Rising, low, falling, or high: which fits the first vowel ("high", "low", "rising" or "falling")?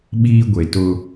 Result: high